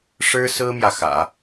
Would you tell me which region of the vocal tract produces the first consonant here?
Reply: retroflex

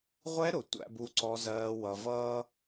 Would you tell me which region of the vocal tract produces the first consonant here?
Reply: uvula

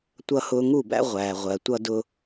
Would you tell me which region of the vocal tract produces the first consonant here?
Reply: tongue tip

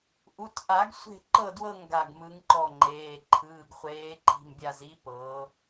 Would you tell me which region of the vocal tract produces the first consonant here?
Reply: throat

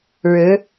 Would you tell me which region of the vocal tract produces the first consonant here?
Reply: retroflex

